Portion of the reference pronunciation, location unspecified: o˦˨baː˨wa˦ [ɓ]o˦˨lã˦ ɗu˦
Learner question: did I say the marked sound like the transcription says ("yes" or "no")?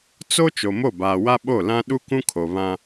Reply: yes